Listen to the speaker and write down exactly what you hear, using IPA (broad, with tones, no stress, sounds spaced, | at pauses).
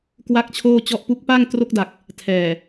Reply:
k w a˥˩ k̚ t͡ɕʰ oː˥˩ t͡ɕ ɔ˥˩ ʔ p u˦˥ k̚ p a˥˩ ŋ t r o˦˥ k̚ d a˨˩ k̚ | tʰ ɛː˨˩